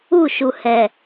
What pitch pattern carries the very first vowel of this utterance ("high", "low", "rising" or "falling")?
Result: falling